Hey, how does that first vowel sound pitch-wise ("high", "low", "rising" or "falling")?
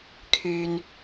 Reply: low